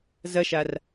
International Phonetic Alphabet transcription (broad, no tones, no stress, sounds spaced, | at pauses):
z ɐ ʃ a r